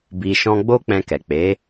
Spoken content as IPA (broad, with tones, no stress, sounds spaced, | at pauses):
b i˧ ʃ ɔ̃˦ ɡ͡b o˦ k͡p ɛ̃˧ k ɛ˨ k͡p e˨˦